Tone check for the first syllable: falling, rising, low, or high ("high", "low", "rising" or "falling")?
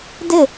falling